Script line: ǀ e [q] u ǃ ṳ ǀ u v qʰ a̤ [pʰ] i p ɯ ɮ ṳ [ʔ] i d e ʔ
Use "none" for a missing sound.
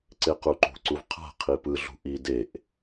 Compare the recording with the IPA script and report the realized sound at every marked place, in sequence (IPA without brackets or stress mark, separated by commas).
q, qʰ, ʔ